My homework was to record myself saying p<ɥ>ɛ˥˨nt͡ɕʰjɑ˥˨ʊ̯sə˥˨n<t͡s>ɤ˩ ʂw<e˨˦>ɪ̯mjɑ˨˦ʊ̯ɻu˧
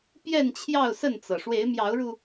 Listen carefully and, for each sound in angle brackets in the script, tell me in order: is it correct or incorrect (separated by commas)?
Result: incorrect, correct, correct